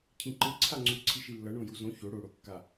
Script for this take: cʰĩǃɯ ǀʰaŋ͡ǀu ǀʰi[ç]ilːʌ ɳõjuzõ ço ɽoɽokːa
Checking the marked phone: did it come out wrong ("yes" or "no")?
yes